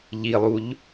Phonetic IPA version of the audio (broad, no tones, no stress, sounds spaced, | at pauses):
ʎ i lˠ u ʎ